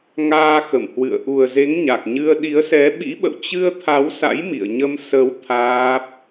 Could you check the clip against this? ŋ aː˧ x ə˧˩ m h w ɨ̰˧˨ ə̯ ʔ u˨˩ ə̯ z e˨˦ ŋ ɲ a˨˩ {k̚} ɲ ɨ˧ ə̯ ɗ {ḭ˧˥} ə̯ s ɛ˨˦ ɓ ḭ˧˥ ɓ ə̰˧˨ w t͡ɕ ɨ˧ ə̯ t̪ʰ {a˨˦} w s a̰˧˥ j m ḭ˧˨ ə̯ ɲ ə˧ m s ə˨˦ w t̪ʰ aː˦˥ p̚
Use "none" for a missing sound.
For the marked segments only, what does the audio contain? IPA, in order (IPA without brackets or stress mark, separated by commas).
k̚, i˨˦, a˨˦